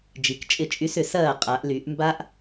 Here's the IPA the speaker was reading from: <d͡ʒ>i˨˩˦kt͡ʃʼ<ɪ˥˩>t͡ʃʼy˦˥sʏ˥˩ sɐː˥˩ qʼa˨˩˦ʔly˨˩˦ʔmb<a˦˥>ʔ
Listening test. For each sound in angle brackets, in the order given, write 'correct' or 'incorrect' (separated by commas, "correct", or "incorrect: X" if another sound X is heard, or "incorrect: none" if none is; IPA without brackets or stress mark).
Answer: correct, correct, correct